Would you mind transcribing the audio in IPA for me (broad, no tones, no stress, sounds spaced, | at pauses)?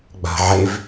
ɡ͡b a̤ ʕ e v